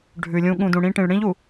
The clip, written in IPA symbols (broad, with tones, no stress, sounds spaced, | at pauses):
ɖʱ ʉ˨ lʲ ũ˦ ɠ ũ˨ d ũ˨ ɽ ĩ˦ ʈ ĩ˨ ɭ ɽ ĩ˦ ʎ u˨